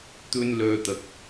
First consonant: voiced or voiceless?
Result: voiceless